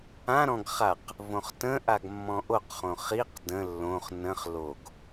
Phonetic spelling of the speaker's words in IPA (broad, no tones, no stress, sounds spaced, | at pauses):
ã ɾ ɔ̃ ɡ χ a q | v õ χ t ə̃ ʔ a ɡ mː ɔ̃ ʔ o q χ õ χ i q d ə̃ lː õ χ n ə̃ χ l o ɡ